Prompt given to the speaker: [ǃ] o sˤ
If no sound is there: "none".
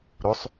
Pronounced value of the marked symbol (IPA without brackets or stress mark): ɾ